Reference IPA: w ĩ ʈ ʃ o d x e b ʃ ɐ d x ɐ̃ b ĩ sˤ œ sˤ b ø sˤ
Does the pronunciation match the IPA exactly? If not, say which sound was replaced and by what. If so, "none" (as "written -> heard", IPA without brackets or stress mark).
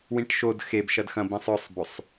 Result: none